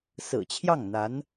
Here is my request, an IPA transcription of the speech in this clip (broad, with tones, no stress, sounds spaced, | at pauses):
s ɹ̩˨˩ t͡ɕʰ j ɑ˥˩ ŋ n̪ a˧˥ n